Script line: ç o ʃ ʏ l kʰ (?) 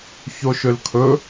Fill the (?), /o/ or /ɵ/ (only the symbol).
ɵ